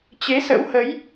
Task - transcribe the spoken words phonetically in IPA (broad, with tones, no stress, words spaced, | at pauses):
t͡ɕe˨˦sə̰˧˥whə˨˦j